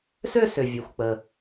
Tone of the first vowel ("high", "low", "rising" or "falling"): falling